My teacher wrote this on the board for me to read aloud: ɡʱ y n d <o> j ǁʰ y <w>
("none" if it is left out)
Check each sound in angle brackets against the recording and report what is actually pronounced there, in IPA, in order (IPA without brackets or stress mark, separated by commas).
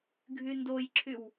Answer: o, w